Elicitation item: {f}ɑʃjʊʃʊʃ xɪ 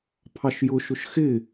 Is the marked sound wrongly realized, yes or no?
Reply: yes